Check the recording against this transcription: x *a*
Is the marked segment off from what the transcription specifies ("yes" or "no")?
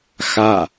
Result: no